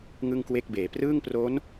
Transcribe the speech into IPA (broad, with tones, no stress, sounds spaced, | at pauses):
ŋ ɯ˥˩ ŋ k w e˥˩ k̚ b eː˩˦ p r ɯː˥˩ ŋ p r o˦˥ n